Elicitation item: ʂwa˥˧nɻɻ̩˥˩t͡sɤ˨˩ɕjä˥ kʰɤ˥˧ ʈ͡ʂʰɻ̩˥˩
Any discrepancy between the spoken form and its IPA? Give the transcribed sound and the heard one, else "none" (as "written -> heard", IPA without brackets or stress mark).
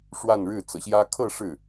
ʈ͡ʂʰ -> ʂ